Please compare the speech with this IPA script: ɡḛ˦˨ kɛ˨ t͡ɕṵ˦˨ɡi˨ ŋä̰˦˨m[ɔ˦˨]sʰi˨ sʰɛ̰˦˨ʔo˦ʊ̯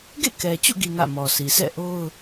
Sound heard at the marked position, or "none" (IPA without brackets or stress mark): ɔ˨